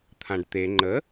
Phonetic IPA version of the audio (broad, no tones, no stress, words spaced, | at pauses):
t̪ʰãɖt̪e ŋ͡ǃə